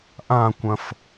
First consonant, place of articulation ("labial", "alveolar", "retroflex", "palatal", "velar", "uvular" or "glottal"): glottal